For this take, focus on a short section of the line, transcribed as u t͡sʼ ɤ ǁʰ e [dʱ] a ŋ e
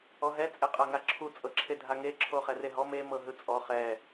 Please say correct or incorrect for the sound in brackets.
correct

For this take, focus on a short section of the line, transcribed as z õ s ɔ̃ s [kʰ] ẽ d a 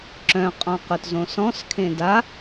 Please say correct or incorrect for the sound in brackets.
correct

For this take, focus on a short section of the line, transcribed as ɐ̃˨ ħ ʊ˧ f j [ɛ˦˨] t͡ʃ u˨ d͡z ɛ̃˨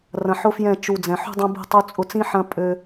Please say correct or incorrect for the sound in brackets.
incorrect: ɛ̃˦˨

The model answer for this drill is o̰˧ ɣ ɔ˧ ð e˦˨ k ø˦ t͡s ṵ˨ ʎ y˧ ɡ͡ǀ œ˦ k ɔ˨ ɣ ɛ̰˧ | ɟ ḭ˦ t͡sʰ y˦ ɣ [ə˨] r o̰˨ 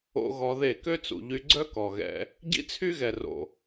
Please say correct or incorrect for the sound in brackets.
incorrect: ɛ˨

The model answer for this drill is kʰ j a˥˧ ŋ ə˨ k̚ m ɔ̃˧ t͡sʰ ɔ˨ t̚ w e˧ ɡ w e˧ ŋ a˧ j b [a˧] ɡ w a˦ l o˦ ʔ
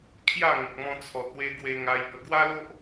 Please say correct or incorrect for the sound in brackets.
incorrect: ə˧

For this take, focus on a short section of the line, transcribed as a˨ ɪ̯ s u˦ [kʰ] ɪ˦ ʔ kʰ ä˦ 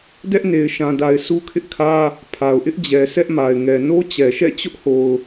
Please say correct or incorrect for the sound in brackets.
correct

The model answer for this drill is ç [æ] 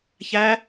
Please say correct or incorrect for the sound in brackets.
correct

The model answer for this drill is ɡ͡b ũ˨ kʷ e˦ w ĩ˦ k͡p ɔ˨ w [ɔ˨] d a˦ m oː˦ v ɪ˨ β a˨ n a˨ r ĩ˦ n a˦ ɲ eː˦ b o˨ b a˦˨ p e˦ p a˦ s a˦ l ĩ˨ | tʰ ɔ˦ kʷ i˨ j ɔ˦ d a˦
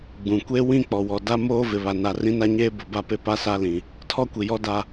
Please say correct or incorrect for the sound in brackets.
correct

